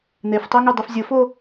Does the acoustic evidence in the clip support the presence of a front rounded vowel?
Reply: yes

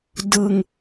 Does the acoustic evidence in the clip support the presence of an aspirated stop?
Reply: no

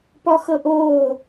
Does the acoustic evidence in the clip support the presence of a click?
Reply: no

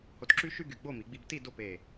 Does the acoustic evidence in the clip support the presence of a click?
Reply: yes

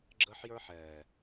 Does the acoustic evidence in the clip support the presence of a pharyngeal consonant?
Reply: yes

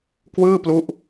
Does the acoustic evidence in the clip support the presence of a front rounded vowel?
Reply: no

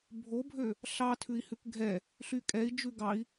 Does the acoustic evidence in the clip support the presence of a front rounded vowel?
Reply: yes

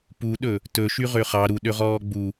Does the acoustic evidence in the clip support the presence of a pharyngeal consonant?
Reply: no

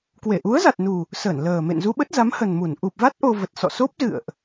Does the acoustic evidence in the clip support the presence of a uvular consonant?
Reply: no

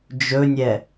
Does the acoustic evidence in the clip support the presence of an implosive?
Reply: no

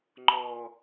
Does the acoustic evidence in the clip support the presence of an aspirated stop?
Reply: no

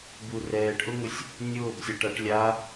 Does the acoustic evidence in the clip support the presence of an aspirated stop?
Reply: no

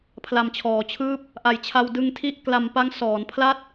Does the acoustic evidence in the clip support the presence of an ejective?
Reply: no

